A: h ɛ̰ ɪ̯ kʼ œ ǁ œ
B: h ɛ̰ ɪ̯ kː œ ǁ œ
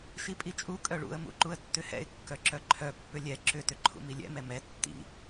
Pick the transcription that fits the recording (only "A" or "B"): B